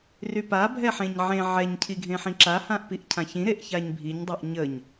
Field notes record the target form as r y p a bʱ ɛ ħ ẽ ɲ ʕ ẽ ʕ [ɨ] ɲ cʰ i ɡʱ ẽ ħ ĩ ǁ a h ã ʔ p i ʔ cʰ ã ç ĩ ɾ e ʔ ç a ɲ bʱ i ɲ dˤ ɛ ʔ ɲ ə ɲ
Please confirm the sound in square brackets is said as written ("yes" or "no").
no